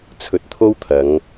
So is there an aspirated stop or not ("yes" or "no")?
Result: yes